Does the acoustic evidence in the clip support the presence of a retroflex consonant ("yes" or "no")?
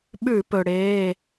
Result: yes